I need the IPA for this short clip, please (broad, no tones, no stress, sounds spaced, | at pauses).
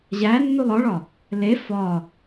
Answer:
ʑ æ nː u lˠ ɒ ɭ ɒ | l e f ɒ